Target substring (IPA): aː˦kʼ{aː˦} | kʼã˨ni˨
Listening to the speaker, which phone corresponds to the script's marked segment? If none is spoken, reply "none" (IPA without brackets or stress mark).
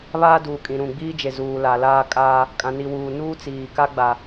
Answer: aː˦